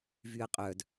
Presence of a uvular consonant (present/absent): present